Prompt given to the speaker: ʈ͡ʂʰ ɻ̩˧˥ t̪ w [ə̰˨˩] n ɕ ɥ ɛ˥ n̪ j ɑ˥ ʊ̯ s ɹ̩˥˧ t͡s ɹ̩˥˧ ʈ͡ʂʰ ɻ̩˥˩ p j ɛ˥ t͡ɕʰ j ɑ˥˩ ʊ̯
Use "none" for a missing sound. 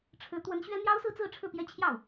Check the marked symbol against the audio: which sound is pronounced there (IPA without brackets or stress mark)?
ə˧˥